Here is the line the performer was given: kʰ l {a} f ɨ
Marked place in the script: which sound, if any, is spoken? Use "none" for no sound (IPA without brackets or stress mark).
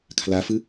a